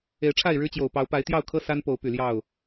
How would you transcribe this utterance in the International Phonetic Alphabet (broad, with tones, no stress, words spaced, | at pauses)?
e˨˦ɪ̯ʈ͡ʂʰa˥˨ɪ̯ɻɻ̩˦t͡ɕjo˨˩ʊ̯ pɑ˨˦ʊ̯pa˨˦ɪ̯t̪jɑ˥˨ʊ̯kʰɤ˦ sa˦npo˨˦ʊ̯ py˨˩ljɑ˥˨ʊ̯